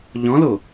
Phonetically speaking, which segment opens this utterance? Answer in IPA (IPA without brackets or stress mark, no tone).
ʎ